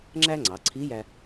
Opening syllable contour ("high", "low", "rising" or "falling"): high